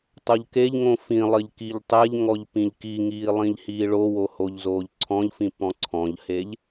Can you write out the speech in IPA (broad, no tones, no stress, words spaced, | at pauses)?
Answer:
tˤoʎkeʎŋõ fĩlˠɘʎ kiʎtˤɛʎŋɔʎ pĩʎkiŋiː lˠĩʎhiːɭowo hoʎzoːʎǀʰɔ̃ʎfĩ pɔ̃ǀʰɔ̃ʎheʎ